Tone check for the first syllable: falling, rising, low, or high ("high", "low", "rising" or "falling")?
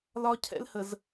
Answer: high